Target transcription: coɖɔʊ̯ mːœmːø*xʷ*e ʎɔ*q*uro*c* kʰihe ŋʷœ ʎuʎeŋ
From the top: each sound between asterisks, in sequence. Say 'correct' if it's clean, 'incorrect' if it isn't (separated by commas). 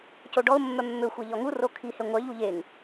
correct, incorrect, incorrect